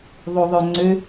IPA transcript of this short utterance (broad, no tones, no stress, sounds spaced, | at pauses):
ðˤ o ðˤ œ ŋ͡ǀ ø